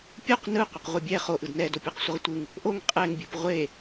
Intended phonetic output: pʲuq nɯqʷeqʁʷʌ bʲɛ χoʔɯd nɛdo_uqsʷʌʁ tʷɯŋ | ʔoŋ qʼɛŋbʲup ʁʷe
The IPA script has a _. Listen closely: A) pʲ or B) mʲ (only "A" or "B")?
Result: A